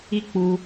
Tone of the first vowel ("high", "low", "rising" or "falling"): high